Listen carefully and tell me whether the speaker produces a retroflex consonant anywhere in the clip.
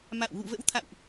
no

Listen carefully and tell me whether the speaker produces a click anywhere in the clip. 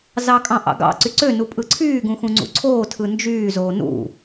yes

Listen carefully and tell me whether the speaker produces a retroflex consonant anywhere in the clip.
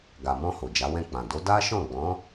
no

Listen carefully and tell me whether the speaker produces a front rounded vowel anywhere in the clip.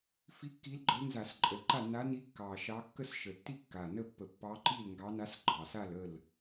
no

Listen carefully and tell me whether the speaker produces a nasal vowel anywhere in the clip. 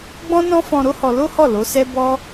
yes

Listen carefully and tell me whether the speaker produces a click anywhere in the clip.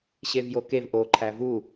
yes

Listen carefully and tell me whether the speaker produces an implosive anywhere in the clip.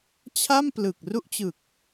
no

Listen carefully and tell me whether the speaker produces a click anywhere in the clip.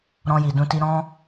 no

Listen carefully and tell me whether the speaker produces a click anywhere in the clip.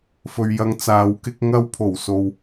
no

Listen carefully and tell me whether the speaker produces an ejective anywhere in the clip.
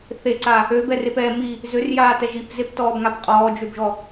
yes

